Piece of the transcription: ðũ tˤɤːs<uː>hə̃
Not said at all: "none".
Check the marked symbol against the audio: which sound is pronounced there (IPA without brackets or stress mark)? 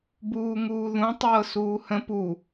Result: uː